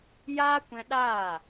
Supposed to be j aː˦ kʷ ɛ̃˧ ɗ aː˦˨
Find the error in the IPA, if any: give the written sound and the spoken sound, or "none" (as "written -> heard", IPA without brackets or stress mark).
none